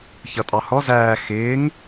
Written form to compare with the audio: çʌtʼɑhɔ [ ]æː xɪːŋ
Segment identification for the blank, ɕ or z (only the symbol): z